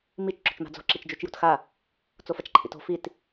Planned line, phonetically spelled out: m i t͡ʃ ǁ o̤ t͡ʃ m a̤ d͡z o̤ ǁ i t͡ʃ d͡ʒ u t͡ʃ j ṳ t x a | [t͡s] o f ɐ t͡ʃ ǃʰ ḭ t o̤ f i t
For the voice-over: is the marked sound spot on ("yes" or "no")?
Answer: yes